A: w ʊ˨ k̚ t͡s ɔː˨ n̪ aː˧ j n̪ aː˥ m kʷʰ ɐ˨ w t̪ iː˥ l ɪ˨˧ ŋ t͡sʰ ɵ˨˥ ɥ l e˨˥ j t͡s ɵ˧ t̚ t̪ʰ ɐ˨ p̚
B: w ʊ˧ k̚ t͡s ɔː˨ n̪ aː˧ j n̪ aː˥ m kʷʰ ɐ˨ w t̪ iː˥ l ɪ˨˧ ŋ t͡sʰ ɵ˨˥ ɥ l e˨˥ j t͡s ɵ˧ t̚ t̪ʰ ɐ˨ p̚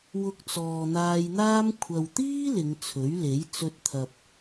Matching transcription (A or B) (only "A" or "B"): B